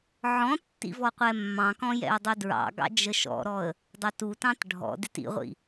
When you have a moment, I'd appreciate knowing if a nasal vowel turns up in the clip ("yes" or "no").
yes